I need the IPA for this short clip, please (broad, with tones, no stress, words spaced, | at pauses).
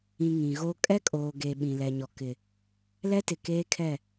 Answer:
ĩ˨ ŋĩ˨ɣo˦ kʼɛ˦kʼoː˨ ɡe˨ ɓĩ˨lɛ˨ɲɔ˨ kɪ˨ | lɛ˦tɪ˨ keː˦kʰɛ˦˨